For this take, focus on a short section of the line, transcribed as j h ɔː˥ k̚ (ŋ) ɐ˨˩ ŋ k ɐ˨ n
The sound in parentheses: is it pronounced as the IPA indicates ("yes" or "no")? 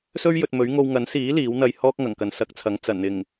yes